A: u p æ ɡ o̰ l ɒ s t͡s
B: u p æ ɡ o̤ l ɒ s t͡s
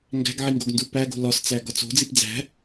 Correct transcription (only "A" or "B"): B